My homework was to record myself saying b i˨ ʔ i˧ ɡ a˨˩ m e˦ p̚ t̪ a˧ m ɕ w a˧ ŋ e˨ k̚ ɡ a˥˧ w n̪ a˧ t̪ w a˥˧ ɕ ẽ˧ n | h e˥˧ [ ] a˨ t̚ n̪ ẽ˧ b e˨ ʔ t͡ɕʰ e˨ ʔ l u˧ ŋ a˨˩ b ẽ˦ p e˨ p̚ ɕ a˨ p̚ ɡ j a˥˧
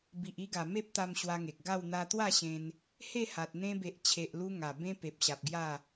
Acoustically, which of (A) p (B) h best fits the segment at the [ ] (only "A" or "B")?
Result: B